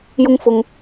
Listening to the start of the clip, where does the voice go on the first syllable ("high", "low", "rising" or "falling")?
high